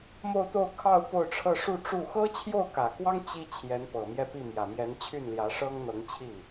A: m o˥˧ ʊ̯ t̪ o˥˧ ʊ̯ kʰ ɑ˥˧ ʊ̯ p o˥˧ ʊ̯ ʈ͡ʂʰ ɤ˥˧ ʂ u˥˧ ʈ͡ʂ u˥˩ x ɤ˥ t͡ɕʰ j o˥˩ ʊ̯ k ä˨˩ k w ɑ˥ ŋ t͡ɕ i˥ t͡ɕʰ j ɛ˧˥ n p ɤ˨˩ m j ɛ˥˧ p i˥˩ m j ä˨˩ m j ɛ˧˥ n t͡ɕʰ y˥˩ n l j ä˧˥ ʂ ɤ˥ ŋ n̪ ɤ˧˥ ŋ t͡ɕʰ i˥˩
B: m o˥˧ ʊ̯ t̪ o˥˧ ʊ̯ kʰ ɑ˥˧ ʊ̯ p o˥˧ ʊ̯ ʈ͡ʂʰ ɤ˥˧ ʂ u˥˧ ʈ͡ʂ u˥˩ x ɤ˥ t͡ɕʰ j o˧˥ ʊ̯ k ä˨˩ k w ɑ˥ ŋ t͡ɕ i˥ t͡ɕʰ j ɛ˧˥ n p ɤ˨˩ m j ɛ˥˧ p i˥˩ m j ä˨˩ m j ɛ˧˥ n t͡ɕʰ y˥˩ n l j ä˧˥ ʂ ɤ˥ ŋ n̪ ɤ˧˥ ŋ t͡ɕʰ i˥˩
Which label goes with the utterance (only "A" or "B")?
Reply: A